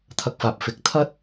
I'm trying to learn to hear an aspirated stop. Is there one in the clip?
yes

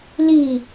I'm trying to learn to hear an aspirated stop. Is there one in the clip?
no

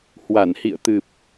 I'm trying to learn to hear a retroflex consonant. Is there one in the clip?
no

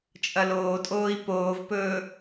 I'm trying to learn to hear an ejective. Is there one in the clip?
yes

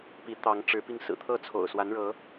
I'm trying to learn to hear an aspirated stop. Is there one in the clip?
yes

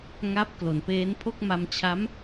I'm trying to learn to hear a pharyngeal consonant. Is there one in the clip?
no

